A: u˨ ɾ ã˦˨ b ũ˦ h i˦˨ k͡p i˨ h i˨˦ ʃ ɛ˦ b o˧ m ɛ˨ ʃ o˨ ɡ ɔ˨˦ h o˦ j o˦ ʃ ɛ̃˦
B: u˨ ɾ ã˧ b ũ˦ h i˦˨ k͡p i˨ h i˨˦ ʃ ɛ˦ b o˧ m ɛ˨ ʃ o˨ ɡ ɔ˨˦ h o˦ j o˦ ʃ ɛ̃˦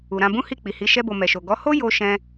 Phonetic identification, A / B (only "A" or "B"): B